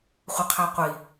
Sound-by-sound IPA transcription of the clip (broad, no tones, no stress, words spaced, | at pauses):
χʷəqʰaqʷi